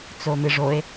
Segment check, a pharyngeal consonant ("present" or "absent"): absent